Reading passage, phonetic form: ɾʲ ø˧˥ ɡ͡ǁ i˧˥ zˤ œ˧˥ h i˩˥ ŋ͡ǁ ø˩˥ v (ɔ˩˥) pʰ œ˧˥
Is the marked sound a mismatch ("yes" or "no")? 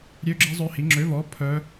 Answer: no